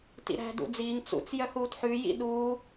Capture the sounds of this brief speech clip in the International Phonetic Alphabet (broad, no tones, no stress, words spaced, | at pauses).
tḭɾæ̤ dṵd͡ziːŋ t͡sṵt͡s jœhuːtħʉ jḭ ɗuː